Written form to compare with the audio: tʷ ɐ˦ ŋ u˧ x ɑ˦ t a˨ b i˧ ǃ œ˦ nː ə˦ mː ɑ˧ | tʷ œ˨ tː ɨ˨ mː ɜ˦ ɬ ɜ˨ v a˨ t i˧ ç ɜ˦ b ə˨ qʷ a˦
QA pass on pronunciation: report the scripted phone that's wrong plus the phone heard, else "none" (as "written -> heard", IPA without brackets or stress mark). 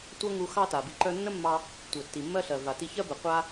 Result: ɨ˨ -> i˨